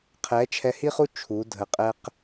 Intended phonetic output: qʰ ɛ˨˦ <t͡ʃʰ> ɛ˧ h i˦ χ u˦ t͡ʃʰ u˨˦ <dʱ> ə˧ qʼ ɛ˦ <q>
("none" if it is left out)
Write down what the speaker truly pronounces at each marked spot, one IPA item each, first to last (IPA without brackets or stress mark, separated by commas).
t͡ʃʰ, dʱ, q